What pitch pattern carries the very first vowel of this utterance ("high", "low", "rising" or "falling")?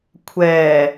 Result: low